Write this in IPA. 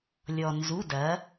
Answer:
lʲɔ˧ nzu˧˥˧dɐ˨˥

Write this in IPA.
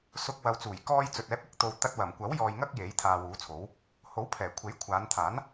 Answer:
sʊ˧k̚ wɐ˨wt͡suː˨˩jkɔː˧jt͡sɵ˨t̚ ɛː˨˥p̚ɪ˨k̚t̪o˧w t̪ɐ˧t̚wɐ˨˩mkʷɐ˨˥w jɔː˧jŋɐ˥k̚ je˨˥jt̪ʰaː˧wuː˨˥t͡sʰo˨˥w | ho˨˥wpʰɛː˨˩ kʷʰe˨˥jkʷʰaː˨˧nt̪ʰaː˨˥n

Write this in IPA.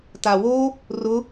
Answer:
tawo | rʊ

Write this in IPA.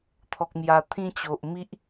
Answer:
t̪ʰɔ˨k̚ mja˨˩t̪ʰĩ˧t͡ɕo˨ʔ mi˦ʔ

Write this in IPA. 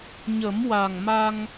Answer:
ɲə˨˩˦m wa˨˩ŋma˧ŋ

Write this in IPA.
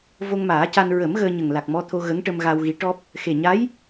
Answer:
vo˧ŋmaː˨˩˦ca˧n ɹə˨˩˦m ɣəː˧ɲə˨˩ŋ la˨˩k̚mɔ˧t̪ʰo˧ ɣə˧˥ŋʈə˧mɣa˧wɣi˧˥ ʈɔ˦˥p̚ | xe˨˩ɲa˧˥j

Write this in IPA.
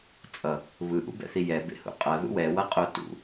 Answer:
t͡sʼʌ | βɯʔṵbɛ̰θi jɛbḛhṵ qʼʌðṵ wɛwʌqʼo tṵ

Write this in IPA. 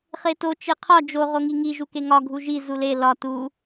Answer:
χeto t͡ʃeqʰɒ d͡ʒo ʁoŋiŋi ʒukeŋɒ ɡʱuʒi zule lɒ tu

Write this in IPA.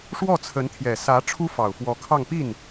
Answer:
ʂwɔ˥˩t͡sʰə˧˥nt̪ʰjɛ˨˩ sä˧˥ ʈ͡ʂʰu˥fɑ˨˩ʊ̯fwɔ˧˥kʰɑ˥˧ŋ pi˥˩n

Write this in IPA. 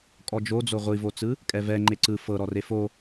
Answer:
kʼɔd͡ʒod͡zo ʁʷivot͡sɯ | kʼɛvɛ ŋ͡ǃeǀɯ fɤɾɔre fo

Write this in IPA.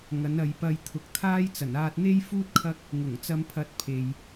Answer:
ŋɐ˨˥nɐ˨˧jpɐ˧j t̪ʰʊ˨k̚t̪ʰaː˥jt͡sɐ˨˩n aː˧t̚n̪e˥jfuː˥t̚ kʰɐ˥k̚ | ŋʊ˨˩ŋt͡sɐ˨˧mpʰɐ˨˥t̚ pʰe˨j

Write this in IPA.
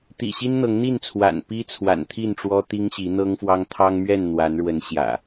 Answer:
t̪ḭ˨˩ɕi˦n n̪ɤ˨˦ŋn̪i˥˨nt͡sʰwa̰˨˩n pi˦ t͡sʰwa̰˨˩nt̪ʰi˥˨nʈ͡ʂwɔ˦ t̪i˦ŋɕi˨˦n̪ɤ˦ŋfwɑ˦ŋ t̪ʰɑ˦ŋmɥɛ˥˨n n̪wa˨˦nɻwə˨˦n ɕjä̰˨˩

